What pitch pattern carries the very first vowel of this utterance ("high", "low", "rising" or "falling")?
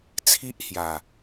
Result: high